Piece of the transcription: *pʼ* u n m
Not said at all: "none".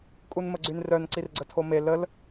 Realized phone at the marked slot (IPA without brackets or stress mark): kʼ